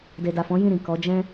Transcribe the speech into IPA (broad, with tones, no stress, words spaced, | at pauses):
de˨da˨fɔ̃˨˦ jĩ˦˨ ɾĩ˨ kɔ˨˦ d͡ʒɛ̃˦